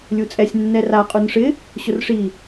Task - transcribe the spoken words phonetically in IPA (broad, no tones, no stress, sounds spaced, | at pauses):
lʲ u t͡sʼ ɛ sʲ nː ɛ r a qʼ u n ʂ ɪ | ɕ ʊ r ʂ i